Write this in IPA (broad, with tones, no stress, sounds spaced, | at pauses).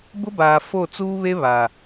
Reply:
b ʊ˦ b aː˨ f o˦˨ t͡s uː˦ β e˦ β a˨